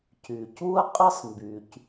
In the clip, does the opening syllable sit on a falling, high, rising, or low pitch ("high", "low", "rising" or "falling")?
low